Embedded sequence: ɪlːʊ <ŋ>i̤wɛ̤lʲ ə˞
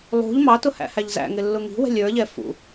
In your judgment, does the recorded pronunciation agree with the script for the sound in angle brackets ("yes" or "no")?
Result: yes